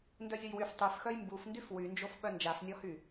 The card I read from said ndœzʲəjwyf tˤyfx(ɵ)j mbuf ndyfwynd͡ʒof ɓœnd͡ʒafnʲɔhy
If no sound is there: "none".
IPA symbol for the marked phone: œ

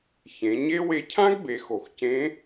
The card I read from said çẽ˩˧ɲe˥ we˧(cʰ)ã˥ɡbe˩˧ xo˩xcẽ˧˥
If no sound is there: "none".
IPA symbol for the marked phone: cʰ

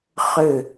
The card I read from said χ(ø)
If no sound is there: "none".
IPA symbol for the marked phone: ø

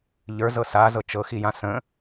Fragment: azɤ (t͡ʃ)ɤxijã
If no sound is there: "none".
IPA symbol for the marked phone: t͡ʃ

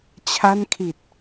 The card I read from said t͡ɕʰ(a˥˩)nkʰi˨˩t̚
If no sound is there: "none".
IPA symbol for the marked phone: a˥˩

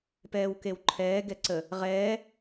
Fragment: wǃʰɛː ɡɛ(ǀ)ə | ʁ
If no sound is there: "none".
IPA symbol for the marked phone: ǀ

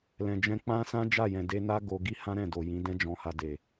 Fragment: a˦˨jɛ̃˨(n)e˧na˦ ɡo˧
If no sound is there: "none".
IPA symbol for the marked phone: d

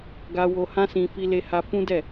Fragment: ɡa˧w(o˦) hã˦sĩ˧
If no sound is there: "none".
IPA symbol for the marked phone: o˧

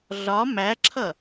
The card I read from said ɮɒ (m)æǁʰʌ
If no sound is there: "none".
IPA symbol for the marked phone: m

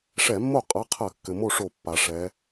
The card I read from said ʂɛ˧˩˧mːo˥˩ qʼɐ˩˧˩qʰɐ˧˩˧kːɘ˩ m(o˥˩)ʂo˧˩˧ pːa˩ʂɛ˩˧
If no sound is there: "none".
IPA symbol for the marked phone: o˥˩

